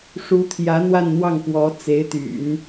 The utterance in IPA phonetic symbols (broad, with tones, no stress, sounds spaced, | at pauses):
ʂ u˧˥ t̪ʰ j ä˧˥ n̪ w a˥˧ n n̪ w ɑ˥˩ ŋ p w ɔ˧˥ t͡s e˧˥ ɪ̯ t̪ y̰˨˩˦ n